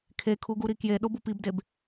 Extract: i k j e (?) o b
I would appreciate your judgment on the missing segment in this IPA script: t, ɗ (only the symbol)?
ɗ